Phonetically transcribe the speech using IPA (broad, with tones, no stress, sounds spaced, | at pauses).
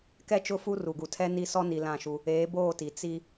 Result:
k ɛ˦ t͡ʃ ʊ˦˨ f u˦ r u˨ ɡ u˨ tʰ ɛ˦ n i˦˨ s ɔ˦ n i˨ l ã˦˨ ʃ u˦ | eː˨˦ b oː˦˨ t i˨ t͡s i˦